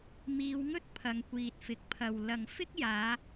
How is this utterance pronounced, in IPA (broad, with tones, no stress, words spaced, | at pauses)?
miː˨˧wŋɵ˥t̚ pʰɐ˨˧ŋkʷiː˨t̚fɪ˨˥k̚pʰɐ˨w lɐ˨ŋfɪ˥k̚jaː˨˧